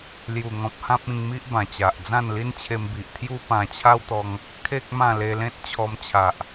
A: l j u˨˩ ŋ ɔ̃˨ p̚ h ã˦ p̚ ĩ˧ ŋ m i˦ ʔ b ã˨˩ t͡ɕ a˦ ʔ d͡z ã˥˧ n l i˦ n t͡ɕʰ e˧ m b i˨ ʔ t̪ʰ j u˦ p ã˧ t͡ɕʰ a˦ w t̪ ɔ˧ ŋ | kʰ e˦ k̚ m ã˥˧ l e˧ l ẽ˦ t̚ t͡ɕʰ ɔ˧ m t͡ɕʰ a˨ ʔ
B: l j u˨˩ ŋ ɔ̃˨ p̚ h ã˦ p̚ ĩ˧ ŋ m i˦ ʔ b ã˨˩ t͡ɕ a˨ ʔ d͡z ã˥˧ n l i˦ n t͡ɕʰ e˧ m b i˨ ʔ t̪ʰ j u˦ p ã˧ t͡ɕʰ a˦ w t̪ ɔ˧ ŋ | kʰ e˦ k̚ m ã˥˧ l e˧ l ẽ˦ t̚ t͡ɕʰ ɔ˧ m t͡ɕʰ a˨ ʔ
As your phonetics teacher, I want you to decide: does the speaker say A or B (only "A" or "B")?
B